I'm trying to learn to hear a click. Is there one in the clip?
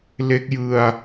no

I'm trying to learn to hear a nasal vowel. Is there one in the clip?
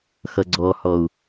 no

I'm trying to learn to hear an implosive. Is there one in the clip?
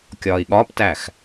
yes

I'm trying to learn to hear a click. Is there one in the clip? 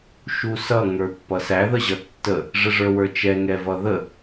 no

